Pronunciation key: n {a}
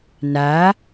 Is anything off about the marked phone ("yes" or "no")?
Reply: no